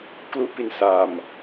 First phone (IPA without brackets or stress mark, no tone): k